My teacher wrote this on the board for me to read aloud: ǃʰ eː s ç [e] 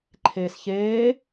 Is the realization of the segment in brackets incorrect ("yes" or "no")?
yes